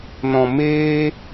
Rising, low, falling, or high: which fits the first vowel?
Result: low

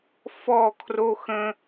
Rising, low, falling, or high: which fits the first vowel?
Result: falling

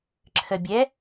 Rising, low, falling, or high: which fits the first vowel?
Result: low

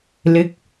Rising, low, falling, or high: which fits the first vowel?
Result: rising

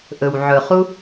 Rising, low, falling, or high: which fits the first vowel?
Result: low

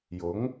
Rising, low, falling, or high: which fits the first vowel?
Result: rising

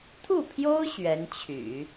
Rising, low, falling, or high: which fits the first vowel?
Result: falling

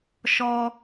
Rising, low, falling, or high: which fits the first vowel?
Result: high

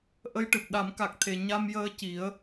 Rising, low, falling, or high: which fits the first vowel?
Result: rising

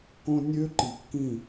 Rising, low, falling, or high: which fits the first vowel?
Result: high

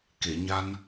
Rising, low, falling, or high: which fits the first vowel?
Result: low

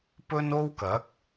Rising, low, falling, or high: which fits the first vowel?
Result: high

